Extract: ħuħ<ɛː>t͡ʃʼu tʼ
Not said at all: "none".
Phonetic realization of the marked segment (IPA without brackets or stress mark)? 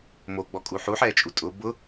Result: ɛː